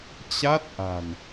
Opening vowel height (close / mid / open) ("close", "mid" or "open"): open